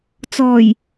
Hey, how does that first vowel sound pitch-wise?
low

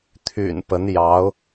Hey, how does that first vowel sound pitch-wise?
low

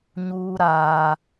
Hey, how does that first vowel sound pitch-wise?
high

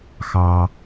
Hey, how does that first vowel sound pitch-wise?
low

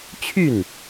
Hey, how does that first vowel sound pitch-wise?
falling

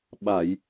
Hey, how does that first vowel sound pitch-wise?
low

